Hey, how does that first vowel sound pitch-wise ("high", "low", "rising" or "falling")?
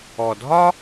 low